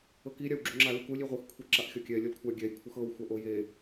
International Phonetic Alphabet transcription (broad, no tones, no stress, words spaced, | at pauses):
ɤki ɾʲawɡ͡ǁuŋ͡ǁa lukulʲ iʁʷɯx kʷʰiǁaʔxʲɔkʲɛ lʲolkʷʰa ɡʲɛj kʷʰɤxɤw xʷaʔoje